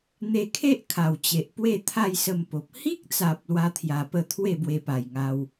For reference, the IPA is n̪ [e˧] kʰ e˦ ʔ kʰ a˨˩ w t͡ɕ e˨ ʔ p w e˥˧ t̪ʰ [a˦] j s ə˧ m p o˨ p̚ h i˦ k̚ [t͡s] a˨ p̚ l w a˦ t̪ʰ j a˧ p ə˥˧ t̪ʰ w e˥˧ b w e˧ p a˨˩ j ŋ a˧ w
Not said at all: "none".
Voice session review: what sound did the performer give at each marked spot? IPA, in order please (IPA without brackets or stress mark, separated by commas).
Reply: e˧, a˥˧, t͡s